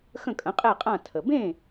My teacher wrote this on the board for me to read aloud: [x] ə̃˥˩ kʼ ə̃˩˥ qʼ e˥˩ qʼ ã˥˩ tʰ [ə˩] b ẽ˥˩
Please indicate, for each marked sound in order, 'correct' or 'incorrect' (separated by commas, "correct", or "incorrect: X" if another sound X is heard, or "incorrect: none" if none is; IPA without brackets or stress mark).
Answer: correct, correct